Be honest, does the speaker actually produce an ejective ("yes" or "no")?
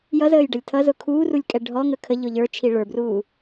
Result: yes